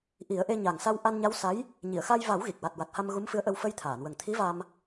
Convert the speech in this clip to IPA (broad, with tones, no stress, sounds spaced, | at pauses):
ʔ i˨˩˦ ə̯ ʔ e˧ ɲ a˨˩ ŋ s a˧ w ʔ a˧ n ɲ a˧˥ w s a˧˥ j | ɲ i˨˩˨ ə̯ x a˧ j v a˨˩˦ w ɣ i˨˩ k̚ w a˨˩ t̚ w a˨˩ t̚ h a˧ m ɣ u˧˥ m f ɨ˧˥ ə̯ ʔ ə˧ w f ə˧ j t̪ʰ aː˨˩˨ n w ə˨˩ ŋ t̪ʰ i˧˥ v a˧ m